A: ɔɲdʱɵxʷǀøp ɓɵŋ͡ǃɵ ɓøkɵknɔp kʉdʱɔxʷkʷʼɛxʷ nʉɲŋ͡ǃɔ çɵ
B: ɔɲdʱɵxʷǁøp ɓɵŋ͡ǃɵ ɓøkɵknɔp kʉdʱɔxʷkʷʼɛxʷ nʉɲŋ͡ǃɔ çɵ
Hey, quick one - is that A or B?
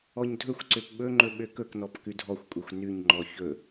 A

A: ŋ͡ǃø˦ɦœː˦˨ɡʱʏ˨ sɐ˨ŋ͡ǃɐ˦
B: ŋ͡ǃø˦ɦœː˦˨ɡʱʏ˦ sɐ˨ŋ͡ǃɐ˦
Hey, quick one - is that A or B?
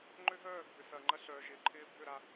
A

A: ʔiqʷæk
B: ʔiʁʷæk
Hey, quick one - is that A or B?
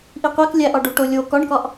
A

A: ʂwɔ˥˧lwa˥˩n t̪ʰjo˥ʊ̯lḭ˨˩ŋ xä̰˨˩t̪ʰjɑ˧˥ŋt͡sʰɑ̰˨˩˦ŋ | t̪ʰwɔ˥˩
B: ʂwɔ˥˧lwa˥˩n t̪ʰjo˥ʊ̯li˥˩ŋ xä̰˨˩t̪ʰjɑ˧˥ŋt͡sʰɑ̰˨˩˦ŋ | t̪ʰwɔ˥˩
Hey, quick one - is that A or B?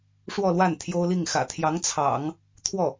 B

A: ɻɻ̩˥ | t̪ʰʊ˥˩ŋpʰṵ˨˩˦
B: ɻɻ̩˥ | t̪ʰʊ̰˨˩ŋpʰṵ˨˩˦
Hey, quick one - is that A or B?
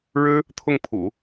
A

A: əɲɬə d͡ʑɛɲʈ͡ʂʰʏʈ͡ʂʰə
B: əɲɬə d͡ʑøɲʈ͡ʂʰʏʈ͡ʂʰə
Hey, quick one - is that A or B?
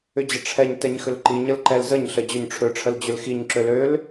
B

